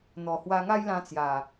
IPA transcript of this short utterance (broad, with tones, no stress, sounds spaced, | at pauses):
n̪ ɔ˨˩ h w a˧ ŋ a˦ j l ã˧ t͡s j a˨˩